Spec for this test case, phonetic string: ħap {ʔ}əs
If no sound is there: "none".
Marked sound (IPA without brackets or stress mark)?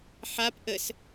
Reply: ʔ